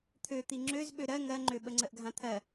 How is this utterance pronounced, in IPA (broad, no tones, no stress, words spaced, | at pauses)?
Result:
t̪ʰøt̪i ŋ͡ǁøz ɓøɾɜ ŋɜŋ͡ǃø ɓəŋ͡ǀəʔɡʱãt̪ʰɜ